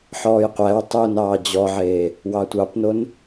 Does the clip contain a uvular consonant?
yes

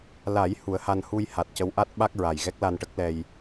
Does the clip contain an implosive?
yes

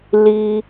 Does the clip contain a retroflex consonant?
no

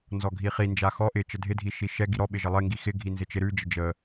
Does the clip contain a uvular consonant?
yes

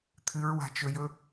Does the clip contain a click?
no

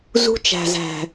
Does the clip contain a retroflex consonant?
no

